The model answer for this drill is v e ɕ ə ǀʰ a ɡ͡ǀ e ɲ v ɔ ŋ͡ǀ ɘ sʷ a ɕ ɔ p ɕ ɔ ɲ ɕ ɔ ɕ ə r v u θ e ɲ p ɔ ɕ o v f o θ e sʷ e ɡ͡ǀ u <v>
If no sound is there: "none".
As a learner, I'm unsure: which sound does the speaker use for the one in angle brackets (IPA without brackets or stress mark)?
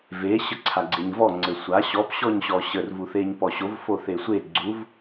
v